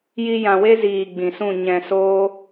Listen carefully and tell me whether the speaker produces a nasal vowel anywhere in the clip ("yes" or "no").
yes